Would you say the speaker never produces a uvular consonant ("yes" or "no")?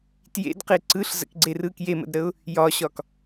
no